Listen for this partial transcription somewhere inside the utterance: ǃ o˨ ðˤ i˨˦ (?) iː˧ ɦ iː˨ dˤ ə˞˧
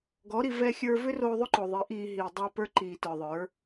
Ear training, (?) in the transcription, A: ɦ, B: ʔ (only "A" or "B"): B